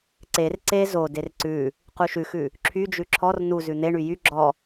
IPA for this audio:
ǀ e r ǀ e z o d e r ǀ ʉ | q u ʃ ʉ x ʉ | ǁʰ y d͡ʒ ʉ ǁʰ ɔ r n u z ʉ n̪ e ɳ y j y ɡ͡ǁ ɔ

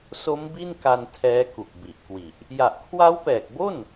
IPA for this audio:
s o˦˥ m b i˥˩ n k a˧ n tʰ ɛː˦˥ k u˨˩ k̚ b i˨˩ ʔ k w i˨˩ ʔ | j a˨˩ ʔ kʰ w a˦˥ w p ɛː˨˩ k̚ b o˥˩ n

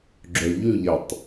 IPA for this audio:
ɡ͡ǁ œ ʎ ʉ ʎ æ tˤ

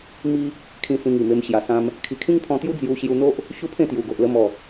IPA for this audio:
m i˦ | kʰ ĩ˧ s ĩ˧ ŋ i˨˩ m e˧ m ɕ j a˨˩ s ã˧ m | kʰ i˨˩ kʰ ĩ˦ ŋ pʰ ɔ̃˧ t̪ j u˦ d͡z j u˧ ɕ j u˧ n̪ o˦ ʔ | ɕ u˦ pʰ ẽ˥˧ t̪ j u˨˩ ɡ o˨ ʔ l ə˧ m ɔ˨˩

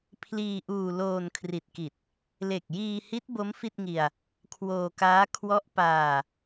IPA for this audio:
pʰ l iː˧ ʔ uː˧ l oː˧ n kʰ r i˨˩ t̚ k i˨˩ t̚ | l e˨˩ k̚ j iː˧ h i˦˥ t̚ b o˦˥ m f i˥˩ t̚ ŋ i˧ a̯ | kʰ w oː˧ k aː˦˥ kʰ w ɔ˦˥ ʔ p aː˧

